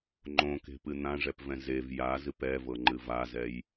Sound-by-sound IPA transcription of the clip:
ŋ͡ǃ õ k e̤ p ɨ n̪ ã ʐ ɛ p v ɛ̃ z e v j a z ɨ p ɛ v ɤ ŋ͡ǃ ɨ v a z ɛ j

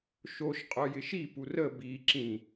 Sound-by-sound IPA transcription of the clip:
ʃ o ʃ qʼ œ j ɪ ʃ i p u r ə b i ǁ ĩ

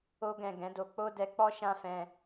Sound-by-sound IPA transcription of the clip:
o˦ ɡ ɛ̃˦˨ ɡ ɛ̃˨˦ d o˧ k͡p o˦ d ɛ˧ k͡p ɔ˦ ʃ ã˦ f ɛ̃˧

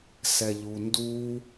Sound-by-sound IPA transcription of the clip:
s ɛ ʎ u n d u

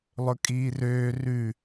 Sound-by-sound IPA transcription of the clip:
lˠ ɵ kʼ iː r øː r ʉ

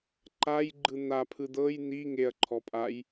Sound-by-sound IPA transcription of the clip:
ǃ a j ɡ͡ǃ ɯ n̪ a pʰ ɯ d̪ ɤ j n̪ i ŋ e ɐ̯ ǃʰ ɔ pʼ a j

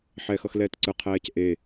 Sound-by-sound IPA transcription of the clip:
ħ ɛː x ʌ x l ɛː t ǀ ɯ qʰ ɛː c ʔ e

